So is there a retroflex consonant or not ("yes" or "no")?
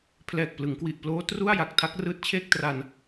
no